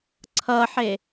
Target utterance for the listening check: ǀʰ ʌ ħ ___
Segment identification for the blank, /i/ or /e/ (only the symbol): e